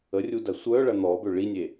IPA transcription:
ə rʲ u d ɐ sʷ œ ɭ ɐ n̪ ɔ b ø ɭ i nʲ e

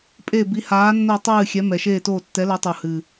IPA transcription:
pʼ e˦˨ b i˨˥ h aː˨˥ nː o˦˨ tˤ ɨː˦˨ xʲ ɛ˨˥ m ɛ˨˩ ʃ eː˦˨ t oː˦˨ tː ɛ˨˥ l ɛ˨˥ tˤ u˨˩ h ɨ˨˩

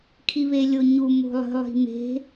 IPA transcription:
kʰ i β e lʲ o ɲ u m o̤ lˠ ə̤ lˠ i̤ m e̤

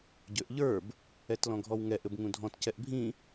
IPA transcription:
ɟ ø ʔ ʎ ə˞ b | ɛ t l ɔ̃ ɡʱ ɔ w ŋ ɛ ʔ ɘ b ŋ ũ dʱ ɔ̃ t c ɛ ʔ bʱ ĩ

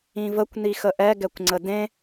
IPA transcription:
ĩ v ə kʷ n i x ə ʔ ɛ ɡ ɛ kʷ ŋ͡ǀ ə d ẽ

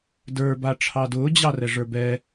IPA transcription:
d ə˞ b a ʈ͡ʂʰ ɑ d ʊː d͡ʑ ɑ r ɛ ʐ ə˞ b ɛ

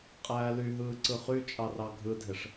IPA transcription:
qʼ æː l y ɦ ɯː ǀ ɯ χ y t͡ʃʼ ɑ r ɑ ɡʱ ɯ dʱ e ʂ

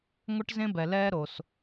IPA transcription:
ŋʷ ə˥ ʈ z ẽ˥ b ɛ˧ l ɛ˥ ɾ o˧ s

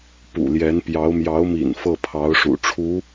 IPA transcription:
p ṵ˨˩ l j ɛ˧˥ n p j ɑ˧˥ ʊ̯ m j ɑ˧˥ ʊ̯ m ḭ˨˩ n f ɤ˥˩ pʰ ɑ˧˥ ʊ̯ ʂ ṵ˨˩ ʈ͡ʂʰ u˧˥

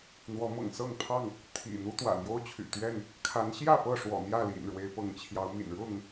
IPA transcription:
n̪ w ɔ˨˦ m ɤ̰˨˩ ŋ s ɤ˥˨ ŋ pʰ ɑ˥˨ ŋ | t̪ʰ ḭ˨˩ n̪ u˦ t̪ w ä̰˨˩ n̪ j o˦ ʊ̯ t͡ɕʰ y̰˨˩ t̪ ɥ ɛ˥˨ n | kʰ a˨˦ n ɕ j ä˥˨ p ɤ˥˨ ʂ w ɔ̰˨˩ n̪ j ä˥˨ l ḭ˨˩ n ɻ w e˨˦ ɪ̯ p ɤ˨˦ ŋ t͡ɕʰ j ɑ˨˦ ʊ̯ m ḭ˨˩ n ɻ ʊ˥˨ ŋ

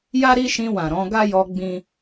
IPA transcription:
j a˦ ɾ i˦ ʃ ĩ˧ w ã˨ ɾ ɔ̃˨˦ ɡ a˦ j ɔ˧ ɡ͡b ĩ˦

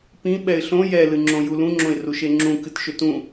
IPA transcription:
p ĩ ɓ ɛ ɪ̯ ɬ õ j ɛ l ɨ ŋ͡ǁ õ j u l ũ ŋ͡ǁ õ ɪ̯ r u ʃ e ŋ͡ǁ ũ k ɨ t ʃ ʏ t ũ

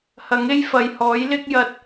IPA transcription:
h ɐ˨˥ ŋ e˥ j f ɐ˨ j h ɔː˨˥ j l ɪ˥ k̚ j ɐ˧ t̚

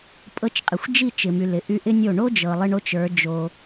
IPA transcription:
pʼ ɤ˧ t͡ʃ qʼ ɪ˨ xʷ d͡ʒ i˦˨ t͡ʃ ɪ˨ m y˨ l ɪ˨ ʔ y˧ ʔ ɪ˦ nʲ o˦˨ ɳ o˦ d͡ʒ ɤ˨ lˠ ɪ˧ ɳ o˧ t͡ʃ ə˞˨˦ d͡ʒ o˧

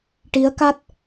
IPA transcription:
ʈ i˧˥ ə̯ k a˦˥ t̚

